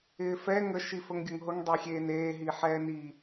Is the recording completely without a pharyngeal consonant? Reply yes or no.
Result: no